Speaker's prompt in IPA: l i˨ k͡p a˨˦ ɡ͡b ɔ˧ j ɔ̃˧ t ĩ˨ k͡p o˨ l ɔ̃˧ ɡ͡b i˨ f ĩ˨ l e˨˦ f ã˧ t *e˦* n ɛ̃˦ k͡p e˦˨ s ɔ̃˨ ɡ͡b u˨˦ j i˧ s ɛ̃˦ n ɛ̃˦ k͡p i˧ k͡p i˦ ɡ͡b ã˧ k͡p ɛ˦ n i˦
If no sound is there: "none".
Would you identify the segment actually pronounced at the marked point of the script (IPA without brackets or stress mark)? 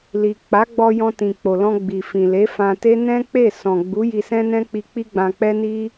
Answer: e˦